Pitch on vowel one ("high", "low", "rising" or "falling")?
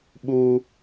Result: high